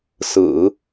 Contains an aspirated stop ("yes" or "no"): no